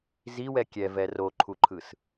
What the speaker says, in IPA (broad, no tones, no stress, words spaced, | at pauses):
ziwɛ kʲɛvɛ roǃʰuǃʰɯs